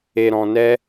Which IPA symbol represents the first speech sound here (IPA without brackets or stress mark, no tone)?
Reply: e